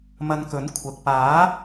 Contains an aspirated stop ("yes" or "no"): yes